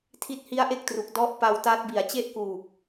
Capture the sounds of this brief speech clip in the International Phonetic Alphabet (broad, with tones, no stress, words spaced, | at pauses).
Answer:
tʰi˦˥t̚ hi˦˥a̯ʔe˥˩k̚tru˨˩k̚ dɔ˦˥ʔ pa˧w ta˦˥t̚ bi˨˩a̯t͡ɕe˥˩ʔkuː˨˩k̚